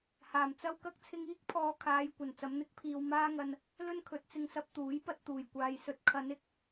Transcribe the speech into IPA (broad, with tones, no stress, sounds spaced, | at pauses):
h aː˨˩ m t͡s ɐ˥ w k ɐ˧ k̚ t͡sʰ ɪ˧ ŋ iː˥ k̚ pʰ ɔː˨ kʰ aː˨˧ j kʷ ɐ˨˩ n t͡s ɐ˨˧ m n̪ ɪ˨˥ k̚ pʰ iː˨ w m aː˥ ŋ ɐ˧ n | l ɵ˥ n kʰ ɵ˨ t̚ t͡s ɪ˧ ŋ s ɐ˧ p̚ t̪ uː˨˥ j p ɐ˧ t̚ t̪ uː˨˩ j kʷ aː˨ j s ɵ˧ t̚ kʰ ɐ˨˧ n ɪ˨˥ k̚